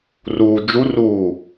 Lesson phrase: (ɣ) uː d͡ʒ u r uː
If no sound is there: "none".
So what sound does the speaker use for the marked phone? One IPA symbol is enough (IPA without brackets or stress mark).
r